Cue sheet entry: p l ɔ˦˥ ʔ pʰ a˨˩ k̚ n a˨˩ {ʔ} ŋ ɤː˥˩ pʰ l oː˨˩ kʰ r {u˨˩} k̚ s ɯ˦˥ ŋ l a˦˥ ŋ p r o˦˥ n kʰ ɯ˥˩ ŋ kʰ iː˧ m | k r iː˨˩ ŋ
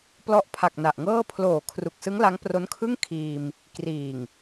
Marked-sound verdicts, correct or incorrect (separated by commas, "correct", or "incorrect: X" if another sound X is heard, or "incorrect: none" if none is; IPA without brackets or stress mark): correct, correct